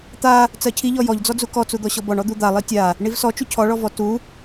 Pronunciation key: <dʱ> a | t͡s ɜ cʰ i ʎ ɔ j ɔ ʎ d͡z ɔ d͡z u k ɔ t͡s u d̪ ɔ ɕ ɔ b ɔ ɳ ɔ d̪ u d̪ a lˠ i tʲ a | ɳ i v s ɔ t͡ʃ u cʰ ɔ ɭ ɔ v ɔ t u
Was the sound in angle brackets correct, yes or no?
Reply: no